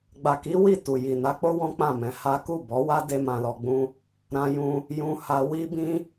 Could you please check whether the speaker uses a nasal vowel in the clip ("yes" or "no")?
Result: yes